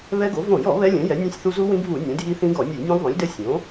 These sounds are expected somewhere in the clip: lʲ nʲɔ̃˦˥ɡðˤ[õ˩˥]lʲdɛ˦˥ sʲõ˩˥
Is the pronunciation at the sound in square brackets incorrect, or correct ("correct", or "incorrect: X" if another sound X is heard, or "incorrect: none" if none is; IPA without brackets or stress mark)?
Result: correct